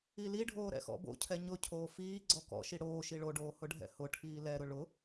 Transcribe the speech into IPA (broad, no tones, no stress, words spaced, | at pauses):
iliɖʱoː ɾɛ̰xɔ̰bo̰cʰɛ ɲʊcʰoː fiː ɡ͡ǀɔkɔ̰ʃi ɽoː ʃiɭoɖoː hʊɖʱɛ̰hʊʈʰiː lɛɾʊ ɭʊ